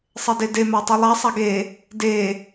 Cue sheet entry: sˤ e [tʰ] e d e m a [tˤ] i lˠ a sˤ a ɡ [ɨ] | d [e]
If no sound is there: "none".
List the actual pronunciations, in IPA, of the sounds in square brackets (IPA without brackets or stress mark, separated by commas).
d, tˤ, e, e